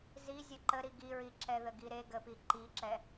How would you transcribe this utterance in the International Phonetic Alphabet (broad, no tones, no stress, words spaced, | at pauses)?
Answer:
zi zʲɵǃə ɾiɡiɹi ǁɛðəɡiɾe ɡəpi ǃiǁɛ